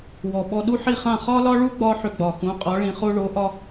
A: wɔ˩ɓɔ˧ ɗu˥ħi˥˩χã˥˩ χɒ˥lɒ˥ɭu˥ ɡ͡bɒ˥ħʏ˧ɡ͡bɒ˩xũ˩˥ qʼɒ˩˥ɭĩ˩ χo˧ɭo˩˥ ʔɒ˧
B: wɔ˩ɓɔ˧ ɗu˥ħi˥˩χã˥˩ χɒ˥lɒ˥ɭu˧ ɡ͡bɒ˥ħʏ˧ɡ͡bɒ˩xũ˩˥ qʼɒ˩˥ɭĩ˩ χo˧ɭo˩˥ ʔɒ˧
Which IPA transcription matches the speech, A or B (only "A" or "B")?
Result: A